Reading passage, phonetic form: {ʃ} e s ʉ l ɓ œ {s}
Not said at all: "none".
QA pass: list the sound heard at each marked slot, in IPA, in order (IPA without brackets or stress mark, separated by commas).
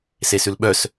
s, s